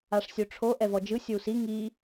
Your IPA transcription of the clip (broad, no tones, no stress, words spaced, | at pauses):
aʂsʲoʈ͡ʂʰo ʔɛvɔd͡ʒɯ sʲowsi ŋi